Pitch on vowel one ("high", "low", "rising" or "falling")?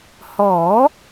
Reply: rising